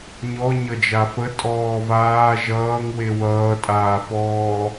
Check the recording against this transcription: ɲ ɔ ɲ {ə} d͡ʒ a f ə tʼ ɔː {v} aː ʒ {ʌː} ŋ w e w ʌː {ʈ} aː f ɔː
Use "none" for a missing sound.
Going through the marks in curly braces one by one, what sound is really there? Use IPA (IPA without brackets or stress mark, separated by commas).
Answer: ʌ, v, ʌː, tʼ